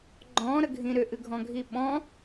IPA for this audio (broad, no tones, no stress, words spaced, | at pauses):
ɡ͡ǃɔ̃ ɾəɡʱĩɾʏ ʔɨɡʱɔ̃ɡʱiɓɔ̃